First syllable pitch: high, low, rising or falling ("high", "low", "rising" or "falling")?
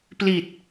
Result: low